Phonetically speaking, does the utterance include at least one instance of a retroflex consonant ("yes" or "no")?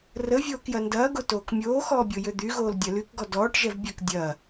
yes